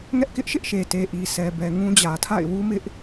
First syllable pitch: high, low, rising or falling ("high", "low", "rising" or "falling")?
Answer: high